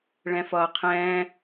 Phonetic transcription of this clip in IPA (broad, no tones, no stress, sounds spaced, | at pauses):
ɭ ɛ̃ f ʌː qʰ ɛ̃ː